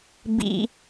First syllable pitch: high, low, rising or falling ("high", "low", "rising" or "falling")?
low